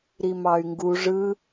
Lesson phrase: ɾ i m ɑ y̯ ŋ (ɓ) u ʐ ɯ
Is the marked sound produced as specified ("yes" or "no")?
no